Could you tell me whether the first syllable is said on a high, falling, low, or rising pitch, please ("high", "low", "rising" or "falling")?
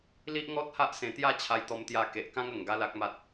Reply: high